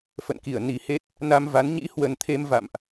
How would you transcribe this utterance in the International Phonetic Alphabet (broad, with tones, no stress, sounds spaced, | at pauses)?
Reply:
f ə̰˧˨ n k i˧˩ ə̯ n i˨˩ h e˦˥ t̚ | n a˧ m v a˨˦ n ɲ ḭ˧˥ h w ə˨˩ n t̪ʰ e˧ m v a̰˧˨ m ʔ